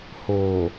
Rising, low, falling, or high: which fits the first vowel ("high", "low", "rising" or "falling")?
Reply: low